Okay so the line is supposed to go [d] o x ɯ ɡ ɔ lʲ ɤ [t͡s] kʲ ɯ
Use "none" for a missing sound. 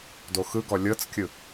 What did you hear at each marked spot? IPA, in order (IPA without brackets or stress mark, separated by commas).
d, t͡s